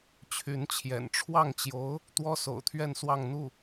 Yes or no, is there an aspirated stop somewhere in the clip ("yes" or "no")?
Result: yes